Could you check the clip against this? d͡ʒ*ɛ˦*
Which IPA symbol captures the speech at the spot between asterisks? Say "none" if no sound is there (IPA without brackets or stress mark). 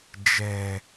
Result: ɛ˦